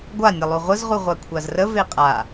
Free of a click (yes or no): yes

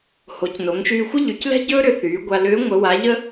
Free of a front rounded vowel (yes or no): no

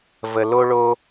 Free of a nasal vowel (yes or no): yes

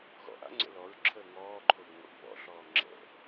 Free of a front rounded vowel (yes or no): yes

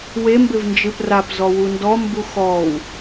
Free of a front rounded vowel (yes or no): yes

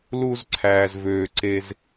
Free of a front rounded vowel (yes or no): no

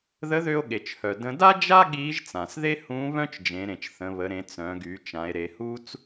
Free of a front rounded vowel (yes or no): no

